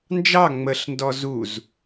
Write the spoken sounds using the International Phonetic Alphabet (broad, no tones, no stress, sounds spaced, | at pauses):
n d͡ʒ ɑ ŋ͡m ə ɬ n d ɔ z u z